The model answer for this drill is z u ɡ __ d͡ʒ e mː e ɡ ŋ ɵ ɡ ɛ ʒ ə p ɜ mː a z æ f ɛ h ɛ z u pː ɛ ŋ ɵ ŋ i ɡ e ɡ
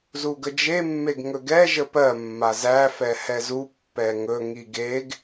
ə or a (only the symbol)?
ə